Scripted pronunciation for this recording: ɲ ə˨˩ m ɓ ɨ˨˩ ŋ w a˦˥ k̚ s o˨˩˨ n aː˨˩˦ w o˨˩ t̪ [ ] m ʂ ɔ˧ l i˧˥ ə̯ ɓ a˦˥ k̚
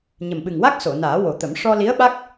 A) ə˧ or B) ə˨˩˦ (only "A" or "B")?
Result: B